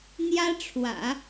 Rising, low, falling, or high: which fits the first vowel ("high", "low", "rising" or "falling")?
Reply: high